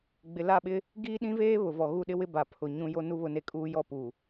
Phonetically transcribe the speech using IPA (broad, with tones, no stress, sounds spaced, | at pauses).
ɡ͡b ɪ˨ l a˦˨ ɓ ɪ˦ | ɡ iː˦ ɗ ĩ˦ v eː˦ β ʊ˨ v ɔ˨ ɣ u˦˨ ɗ ɪ˦ w ɪ˦ b a˨ pʰ ʊ˨ ɲ ũ˦ j o˦ n u˦ β ʊ˦ n e˦ kʼ uː˦ j ɔ˦ p u˨